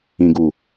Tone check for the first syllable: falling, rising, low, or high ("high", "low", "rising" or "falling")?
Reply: low